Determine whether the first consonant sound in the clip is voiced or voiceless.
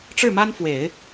voiceless